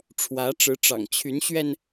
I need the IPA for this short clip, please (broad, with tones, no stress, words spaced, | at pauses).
ʈ͡ʂʰwä˧˥ʈ͡ʂɻ̩˧˥ʈ͡ʂɑ̰˨˩ŋ t͡ɕʰy˧˥nɕɥɛ˧n